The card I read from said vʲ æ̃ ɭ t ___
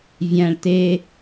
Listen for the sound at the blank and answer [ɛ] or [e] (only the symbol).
e